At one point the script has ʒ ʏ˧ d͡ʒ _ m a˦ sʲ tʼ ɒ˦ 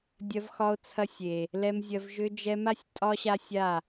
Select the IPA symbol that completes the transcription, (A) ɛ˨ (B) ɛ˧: B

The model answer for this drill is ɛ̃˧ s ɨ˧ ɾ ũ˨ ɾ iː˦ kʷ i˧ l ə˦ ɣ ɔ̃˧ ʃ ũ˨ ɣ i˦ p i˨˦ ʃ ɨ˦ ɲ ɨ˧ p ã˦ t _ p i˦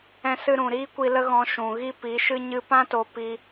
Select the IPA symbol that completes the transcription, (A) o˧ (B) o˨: A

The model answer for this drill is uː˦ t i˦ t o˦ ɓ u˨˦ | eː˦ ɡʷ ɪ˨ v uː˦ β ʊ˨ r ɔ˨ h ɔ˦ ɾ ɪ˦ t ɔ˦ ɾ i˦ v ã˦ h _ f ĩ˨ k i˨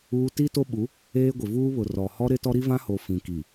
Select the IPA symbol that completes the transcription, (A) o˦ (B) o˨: B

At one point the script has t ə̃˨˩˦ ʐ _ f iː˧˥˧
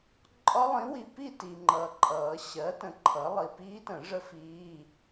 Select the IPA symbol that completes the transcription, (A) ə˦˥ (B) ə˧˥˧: A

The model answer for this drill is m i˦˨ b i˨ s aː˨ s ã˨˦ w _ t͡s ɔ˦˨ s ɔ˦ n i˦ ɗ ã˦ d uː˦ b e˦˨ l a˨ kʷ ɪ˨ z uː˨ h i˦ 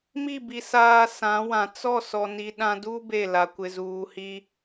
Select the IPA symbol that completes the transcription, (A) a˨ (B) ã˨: B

